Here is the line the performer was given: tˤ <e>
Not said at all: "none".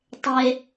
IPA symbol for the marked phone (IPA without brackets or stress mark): e